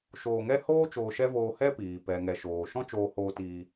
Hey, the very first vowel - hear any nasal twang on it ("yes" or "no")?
no